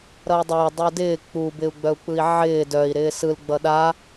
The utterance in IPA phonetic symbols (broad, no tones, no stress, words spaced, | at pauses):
ɾʌi̯dˤɪː dˤudɪː k͡pu bɪu̯ɡ͡bœu̯k͡pɯi̯ʕɪː dœi̯ ɾɪːsɯl ɡ͡bʌɗa